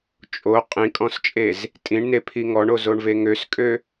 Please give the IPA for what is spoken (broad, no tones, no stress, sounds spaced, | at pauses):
t͡ʃʼ o qʼ ĩ kʼ ɔ̃ s t͡ʃʼ e z | tʼ ĩ ɳ n e pʰ i ŋ ɔ ɳ o z o ɳ v e ŋ ø s kʼ ø